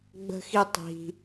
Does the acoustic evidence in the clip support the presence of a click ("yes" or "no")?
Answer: no